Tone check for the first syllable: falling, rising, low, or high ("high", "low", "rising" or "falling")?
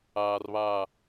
low